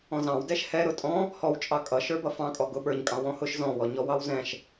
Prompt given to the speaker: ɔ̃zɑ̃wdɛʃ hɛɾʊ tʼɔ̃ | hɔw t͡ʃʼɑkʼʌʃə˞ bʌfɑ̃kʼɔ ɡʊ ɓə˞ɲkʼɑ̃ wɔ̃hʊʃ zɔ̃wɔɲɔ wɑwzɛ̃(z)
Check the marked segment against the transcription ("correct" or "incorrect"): incorrect